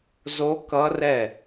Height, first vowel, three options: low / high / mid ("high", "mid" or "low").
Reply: mid